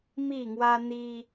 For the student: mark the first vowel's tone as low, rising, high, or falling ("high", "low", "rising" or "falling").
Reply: falling